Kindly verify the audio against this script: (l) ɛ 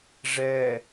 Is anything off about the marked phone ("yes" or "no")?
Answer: yes